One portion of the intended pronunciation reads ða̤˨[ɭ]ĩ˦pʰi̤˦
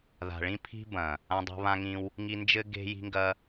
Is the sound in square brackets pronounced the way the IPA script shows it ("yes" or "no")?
yes